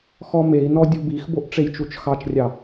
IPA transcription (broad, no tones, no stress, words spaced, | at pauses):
xɔmei̯nɔ dʲubixboʔ ʈ͡ʂejt͡ʃut͡ʃxɑt͡ʃrʲɑ